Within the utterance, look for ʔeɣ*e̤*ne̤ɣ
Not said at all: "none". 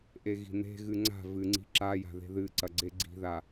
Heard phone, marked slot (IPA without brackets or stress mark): i̤